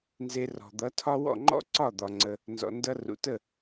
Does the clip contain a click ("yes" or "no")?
yes